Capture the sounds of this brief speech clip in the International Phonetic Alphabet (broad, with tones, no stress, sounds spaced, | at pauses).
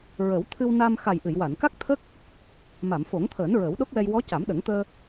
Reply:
ɹ ə˨˩˦ w t̪ʰ ɨ˧ w n a˧ m x a˨˩ j ʔ ɨ˨˩˨ j w a˨˩˨ n k a˦˥ k̚ t̪ʰ ə˦˥ k̚ | m a˨˩˨ m f o˨˩˦ ŋ t̪ʰ əː˨˩˦ n ɹ əː˨˩˦ w ɗ o˦˥ k̚ w ɛ˧ j w ɔ˧˥ c a˨˩˦ m ɗ ə˨˩˦ ŋ t̪ əː˧